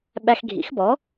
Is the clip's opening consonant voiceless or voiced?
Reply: voiced